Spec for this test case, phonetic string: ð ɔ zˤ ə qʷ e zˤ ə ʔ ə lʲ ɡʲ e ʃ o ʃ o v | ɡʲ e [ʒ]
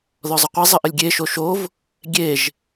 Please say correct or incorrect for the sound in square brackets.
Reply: correct